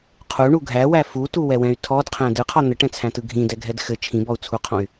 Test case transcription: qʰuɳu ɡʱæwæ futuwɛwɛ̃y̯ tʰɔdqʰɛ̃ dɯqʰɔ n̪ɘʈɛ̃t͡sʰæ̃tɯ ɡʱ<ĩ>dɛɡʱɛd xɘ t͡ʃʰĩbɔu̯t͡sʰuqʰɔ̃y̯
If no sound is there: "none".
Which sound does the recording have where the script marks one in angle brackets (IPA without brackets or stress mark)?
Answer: ĩ